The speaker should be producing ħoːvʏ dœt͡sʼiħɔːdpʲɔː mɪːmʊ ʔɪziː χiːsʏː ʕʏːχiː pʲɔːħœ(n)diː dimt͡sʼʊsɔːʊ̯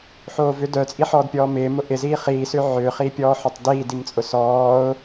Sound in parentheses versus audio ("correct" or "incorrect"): incorrect